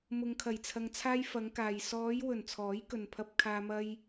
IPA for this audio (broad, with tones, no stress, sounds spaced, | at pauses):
m ʊ˨ ŋ kʰ ɐ˨˩ j t͡sʰ ɐ˨ ŋ t͡sʰ aː˧ j f ɐ˨˧ ŋ k aː˨ j s ɔː˨˧ j w ɵ˨˩ n t͡sʰ ɔː˨˥ j k ɵ˨ n pʰ ɐ˧ p̚ kʰ aː˧ m ɐ˧ j